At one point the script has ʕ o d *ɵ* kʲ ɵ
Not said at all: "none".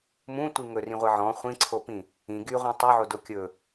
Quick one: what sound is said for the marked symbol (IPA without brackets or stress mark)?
o